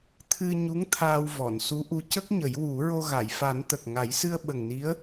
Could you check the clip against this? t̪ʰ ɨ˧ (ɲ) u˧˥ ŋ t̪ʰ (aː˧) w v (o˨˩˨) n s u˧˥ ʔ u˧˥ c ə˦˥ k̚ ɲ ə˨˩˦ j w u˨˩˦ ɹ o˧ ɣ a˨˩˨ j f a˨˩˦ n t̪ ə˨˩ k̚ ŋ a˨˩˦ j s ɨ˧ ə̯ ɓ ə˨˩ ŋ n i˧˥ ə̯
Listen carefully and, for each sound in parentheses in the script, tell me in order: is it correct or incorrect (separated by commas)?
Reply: correct, correct, incorrect